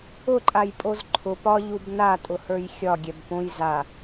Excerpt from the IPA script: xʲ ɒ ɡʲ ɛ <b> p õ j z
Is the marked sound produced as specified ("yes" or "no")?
yes